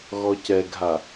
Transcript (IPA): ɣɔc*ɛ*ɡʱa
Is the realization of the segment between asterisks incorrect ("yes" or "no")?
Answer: no